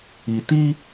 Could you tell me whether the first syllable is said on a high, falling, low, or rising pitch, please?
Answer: low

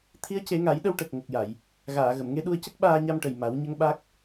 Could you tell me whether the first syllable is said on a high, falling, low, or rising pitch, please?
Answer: rising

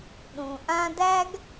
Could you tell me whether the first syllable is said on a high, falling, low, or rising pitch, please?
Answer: low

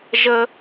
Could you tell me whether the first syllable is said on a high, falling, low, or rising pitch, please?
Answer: high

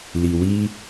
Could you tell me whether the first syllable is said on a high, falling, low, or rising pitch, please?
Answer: low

